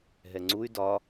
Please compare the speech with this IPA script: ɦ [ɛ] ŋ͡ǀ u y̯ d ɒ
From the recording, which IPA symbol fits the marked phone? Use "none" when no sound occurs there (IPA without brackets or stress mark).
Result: ɛ